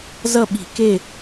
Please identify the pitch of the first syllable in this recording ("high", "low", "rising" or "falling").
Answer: falling